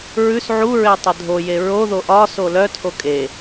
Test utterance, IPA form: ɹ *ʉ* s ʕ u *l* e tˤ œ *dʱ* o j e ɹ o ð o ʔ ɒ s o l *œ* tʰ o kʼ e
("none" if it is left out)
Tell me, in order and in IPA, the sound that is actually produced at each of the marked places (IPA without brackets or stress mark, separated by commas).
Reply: ʉ, ɹ, dʱ, œ